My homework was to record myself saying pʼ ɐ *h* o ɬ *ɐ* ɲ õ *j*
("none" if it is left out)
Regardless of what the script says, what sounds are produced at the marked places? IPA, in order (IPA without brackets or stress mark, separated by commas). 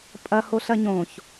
h, ɐ, ç